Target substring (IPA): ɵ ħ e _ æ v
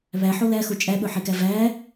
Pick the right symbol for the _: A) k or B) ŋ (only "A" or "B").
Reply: A